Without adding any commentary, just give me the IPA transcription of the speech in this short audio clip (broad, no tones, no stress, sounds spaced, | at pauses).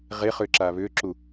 ʁ e χ ʏː ǁ aː β ʏː ǁ u